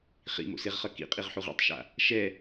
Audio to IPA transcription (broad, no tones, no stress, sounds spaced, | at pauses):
χ ḭ m o̰ s e ʁ χ ʌ k ḭ qʼ i ʁ ħ u ʁ ḭ tˤ ʃ a̰ | ʃ ɛ